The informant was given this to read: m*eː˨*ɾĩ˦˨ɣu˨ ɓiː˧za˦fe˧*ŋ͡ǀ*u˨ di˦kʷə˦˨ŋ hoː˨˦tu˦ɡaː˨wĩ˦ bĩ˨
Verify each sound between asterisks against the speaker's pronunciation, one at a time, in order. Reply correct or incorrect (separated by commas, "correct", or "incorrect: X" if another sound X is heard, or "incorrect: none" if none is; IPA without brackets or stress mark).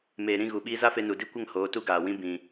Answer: correct, incorrect: n